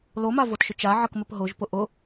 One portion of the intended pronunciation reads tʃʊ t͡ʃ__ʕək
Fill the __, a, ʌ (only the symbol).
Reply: a